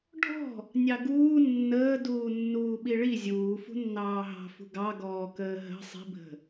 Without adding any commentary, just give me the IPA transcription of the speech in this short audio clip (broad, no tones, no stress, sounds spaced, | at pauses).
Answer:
ɖʱ ɔ̤ | nʲ ɑ ɡ uː nː əː d uː nː uː ɓ i ɭ i zʲ uː f ṳ nː ɑː ɦ ɑ̤ f ṳ ɡ ɑ ɡ ɔː k əː ɦ ə̤ sˤ i̤ bʱ ə̤